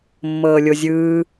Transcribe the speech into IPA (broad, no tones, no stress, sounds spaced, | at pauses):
mː ɤː lʲ o zʲ ɯː